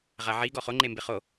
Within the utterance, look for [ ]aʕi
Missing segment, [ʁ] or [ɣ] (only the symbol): ʁ